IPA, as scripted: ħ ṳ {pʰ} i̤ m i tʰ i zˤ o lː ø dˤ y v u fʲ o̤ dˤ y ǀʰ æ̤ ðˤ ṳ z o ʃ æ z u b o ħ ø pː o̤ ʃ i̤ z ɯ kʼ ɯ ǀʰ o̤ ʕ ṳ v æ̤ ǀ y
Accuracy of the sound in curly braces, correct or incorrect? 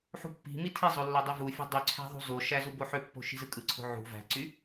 incorrect